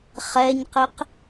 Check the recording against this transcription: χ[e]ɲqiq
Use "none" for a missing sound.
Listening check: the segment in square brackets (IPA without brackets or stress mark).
ɛ